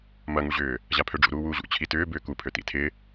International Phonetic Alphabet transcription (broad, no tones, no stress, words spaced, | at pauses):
mɐŋuʑʏː | ʑapʰøɖ͡ʐṵ ɾuːwuːʑṵ t͡ɕʰitʏː bʏːkupʰø tḭtʰɪ